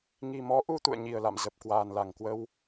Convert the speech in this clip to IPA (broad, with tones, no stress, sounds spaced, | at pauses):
ŋ i˨˩ m ɔ˨˦ ʔ u˧ t̪ ṵ˧˨ ə̯ ɲ i˨˩ ə̯ l a̰˧˨ m z ə˨˩ p̚ k w aː˨˩ n l a˧˩ ŋ k w ə˧ w